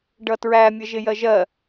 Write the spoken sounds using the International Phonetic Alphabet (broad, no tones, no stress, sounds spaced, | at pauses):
ɖ ʌ t ɹ æ mʲ ʌ ʒ ɪ j ɜ ʒ ɜ